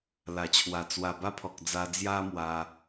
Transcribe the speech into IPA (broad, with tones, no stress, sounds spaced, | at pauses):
l a˨˩ t͡ɕʰ w a˨˩ t͡s w a˨˩ b a˦ pʰ ɔ˨ k̚ d͡z a˧ d͡z j a˦ m w a˧